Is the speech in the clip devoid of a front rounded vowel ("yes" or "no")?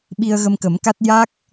yes